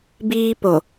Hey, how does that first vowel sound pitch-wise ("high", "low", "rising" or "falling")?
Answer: high